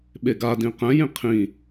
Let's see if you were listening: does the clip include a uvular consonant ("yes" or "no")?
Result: yes